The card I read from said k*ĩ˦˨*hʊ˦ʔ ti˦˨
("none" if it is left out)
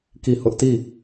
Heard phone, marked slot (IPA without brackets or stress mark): i˦˨